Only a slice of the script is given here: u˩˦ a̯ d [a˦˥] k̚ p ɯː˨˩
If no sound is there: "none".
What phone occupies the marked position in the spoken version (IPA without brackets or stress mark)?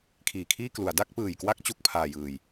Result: a˥˩